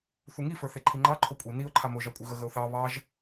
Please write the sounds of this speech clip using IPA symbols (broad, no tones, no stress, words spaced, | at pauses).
θuŋifə˞ θeǃʰiŋ͡ǃɑ ǃʰokʷʼi niʊ̯ǃʰa moʒɑkʷʼɨ ɣəɣəʊ̯θɑ βɑʒ